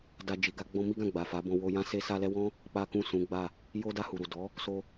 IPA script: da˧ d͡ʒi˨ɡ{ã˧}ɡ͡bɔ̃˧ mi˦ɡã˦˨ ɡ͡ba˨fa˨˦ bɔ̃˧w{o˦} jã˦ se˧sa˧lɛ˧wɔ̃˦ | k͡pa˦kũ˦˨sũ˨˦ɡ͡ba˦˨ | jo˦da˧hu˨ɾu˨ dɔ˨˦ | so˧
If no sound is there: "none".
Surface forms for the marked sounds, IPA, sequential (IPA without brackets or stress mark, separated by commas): a˧, o˧